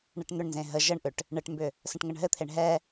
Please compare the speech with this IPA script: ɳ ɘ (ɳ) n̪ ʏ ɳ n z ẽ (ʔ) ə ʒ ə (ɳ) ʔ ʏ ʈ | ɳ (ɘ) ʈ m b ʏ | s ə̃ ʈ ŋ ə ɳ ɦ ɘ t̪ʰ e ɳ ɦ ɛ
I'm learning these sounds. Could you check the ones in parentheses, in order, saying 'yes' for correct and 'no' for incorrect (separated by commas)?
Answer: no, no, yes, yes